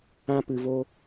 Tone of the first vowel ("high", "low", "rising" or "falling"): high